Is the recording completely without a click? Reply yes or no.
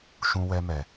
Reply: yes